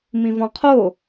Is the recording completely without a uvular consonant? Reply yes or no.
no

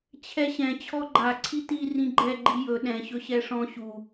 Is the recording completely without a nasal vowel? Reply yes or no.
no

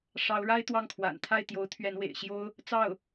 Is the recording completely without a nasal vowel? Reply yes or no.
yes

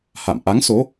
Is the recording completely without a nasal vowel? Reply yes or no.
yes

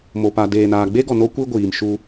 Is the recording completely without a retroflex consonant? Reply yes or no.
yes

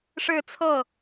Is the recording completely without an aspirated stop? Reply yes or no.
no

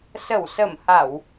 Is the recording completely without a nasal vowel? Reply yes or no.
yes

